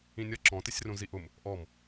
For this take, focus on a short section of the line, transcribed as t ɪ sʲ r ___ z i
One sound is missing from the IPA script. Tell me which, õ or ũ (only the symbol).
ũ